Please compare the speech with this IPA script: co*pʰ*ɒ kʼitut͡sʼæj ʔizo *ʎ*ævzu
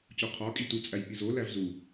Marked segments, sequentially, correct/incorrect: incorrect: qʰ, incorrect: l

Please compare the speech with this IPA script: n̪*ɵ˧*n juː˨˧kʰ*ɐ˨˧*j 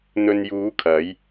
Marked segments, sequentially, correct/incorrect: correct, correct

